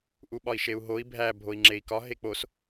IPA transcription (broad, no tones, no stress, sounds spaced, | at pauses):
ʔ u ɓ ɒ i̯ ʃ e u̯ ɦ o i̯ bʱ æ bʱ o i̯ ŋ͡ǁ e i̯ k ɒ ɦ e k͡p o s